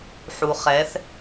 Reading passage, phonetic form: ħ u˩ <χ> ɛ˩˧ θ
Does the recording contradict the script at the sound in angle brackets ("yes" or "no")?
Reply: no